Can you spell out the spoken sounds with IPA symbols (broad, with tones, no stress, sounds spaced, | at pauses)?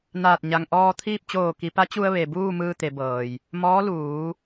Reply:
n aː˧˩ t̚ ɲ a˩ ŋ ʔ ɔː˧ t̪ʰ iː˥˨ p̚ t͡ɕ oː˧˩ k i˩˧ p a˧˥ t͡ɕ u˧ ə̯ ʋ e˩ b uː˥˨ m ɯː˧ t̪ e˩˧ b ɤː˩ j | m ɔː˧˥ l uː˩˧